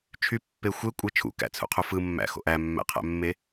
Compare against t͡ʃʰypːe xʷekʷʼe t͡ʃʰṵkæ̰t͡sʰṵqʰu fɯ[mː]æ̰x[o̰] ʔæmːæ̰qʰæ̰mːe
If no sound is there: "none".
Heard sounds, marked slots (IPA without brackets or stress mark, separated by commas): mː, o̰